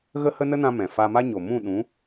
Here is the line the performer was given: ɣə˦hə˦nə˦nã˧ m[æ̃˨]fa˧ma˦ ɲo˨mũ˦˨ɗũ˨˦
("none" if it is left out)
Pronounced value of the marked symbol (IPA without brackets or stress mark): ɛ̃˨